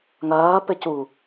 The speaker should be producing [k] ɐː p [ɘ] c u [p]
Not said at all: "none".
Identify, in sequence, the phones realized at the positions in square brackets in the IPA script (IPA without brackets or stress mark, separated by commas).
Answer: ŋ, ɘ, none